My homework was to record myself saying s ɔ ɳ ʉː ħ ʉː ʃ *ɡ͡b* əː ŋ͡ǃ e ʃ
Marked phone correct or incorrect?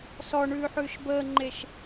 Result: incorrect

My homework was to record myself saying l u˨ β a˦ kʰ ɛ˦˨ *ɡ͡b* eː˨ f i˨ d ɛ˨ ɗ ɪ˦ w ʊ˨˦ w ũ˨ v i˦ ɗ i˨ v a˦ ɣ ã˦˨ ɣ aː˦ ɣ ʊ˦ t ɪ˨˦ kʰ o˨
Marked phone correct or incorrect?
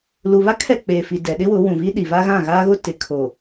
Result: incorrect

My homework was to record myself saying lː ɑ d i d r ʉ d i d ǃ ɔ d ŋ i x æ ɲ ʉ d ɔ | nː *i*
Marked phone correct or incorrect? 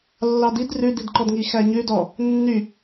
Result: incorrect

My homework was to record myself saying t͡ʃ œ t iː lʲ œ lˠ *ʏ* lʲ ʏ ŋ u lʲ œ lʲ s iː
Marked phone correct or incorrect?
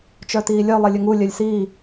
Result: incorrect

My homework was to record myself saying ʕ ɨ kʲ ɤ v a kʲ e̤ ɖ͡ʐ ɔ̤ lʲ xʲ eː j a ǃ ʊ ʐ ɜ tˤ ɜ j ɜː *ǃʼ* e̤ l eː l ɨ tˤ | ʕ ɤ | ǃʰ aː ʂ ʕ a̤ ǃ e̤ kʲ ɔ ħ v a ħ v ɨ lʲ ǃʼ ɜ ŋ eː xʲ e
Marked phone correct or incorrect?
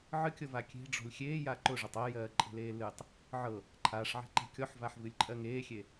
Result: correct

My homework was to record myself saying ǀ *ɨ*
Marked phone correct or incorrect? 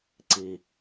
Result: incorrect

